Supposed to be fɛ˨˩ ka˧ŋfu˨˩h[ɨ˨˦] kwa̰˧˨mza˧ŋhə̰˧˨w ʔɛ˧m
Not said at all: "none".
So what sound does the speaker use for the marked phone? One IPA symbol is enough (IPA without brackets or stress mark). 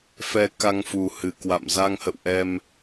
ɨ˨˩